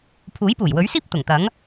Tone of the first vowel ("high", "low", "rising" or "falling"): rising